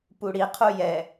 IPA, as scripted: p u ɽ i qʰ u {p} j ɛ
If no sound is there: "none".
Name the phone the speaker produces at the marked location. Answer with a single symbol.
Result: none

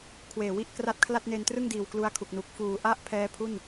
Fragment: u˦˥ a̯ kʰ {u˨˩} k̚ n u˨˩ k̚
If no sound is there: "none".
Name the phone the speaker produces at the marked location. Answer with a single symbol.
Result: u˨˩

